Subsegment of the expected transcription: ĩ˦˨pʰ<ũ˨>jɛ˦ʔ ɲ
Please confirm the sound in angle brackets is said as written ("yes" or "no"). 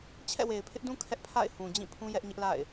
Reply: no